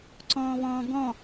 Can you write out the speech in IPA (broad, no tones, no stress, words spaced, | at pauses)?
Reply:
ǀɔ̃ːvɔ̃ːɡɔ̃